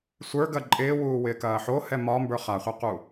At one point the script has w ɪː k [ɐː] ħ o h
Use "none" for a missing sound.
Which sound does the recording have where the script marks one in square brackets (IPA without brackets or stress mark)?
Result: ɐː